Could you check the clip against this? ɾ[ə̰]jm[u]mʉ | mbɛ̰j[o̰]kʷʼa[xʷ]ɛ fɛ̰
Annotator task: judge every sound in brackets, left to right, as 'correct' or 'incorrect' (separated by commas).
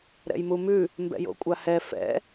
incorrect, correct, correct, incorrect